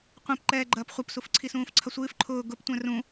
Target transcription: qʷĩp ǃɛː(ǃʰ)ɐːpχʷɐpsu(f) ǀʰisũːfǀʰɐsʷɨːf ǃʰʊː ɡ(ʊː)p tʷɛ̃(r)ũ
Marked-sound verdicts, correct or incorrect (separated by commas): incorrect, correct, incorrect, correct